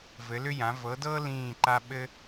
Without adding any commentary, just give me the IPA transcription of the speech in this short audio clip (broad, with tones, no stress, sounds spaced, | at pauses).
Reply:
v ɘ˨˥ l ʏ˥ j ã˨˥ v ɤ˨˥ d ɤː˥ l ĩː˥˨ ǃ a˥ ɓ ɘ˥